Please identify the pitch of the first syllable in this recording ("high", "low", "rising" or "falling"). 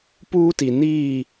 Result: high